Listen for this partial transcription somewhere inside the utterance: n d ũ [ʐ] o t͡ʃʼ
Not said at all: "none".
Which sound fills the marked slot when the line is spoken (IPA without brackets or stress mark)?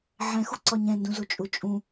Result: z